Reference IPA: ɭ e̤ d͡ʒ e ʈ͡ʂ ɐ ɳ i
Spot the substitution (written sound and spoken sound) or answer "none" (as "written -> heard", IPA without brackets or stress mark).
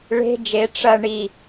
none